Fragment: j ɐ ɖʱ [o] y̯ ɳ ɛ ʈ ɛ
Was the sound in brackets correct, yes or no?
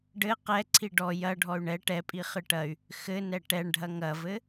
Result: no